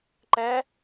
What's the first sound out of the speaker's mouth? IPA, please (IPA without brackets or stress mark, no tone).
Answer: ǃ